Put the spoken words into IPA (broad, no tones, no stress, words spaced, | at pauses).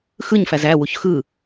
xɯɲfæz æ wuçxɯ